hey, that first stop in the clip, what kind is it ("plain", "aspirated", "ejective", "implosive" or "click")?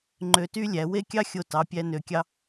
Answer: click